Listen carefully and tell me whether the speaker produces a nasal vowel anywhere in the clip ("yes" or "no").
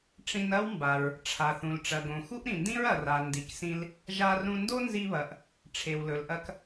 yes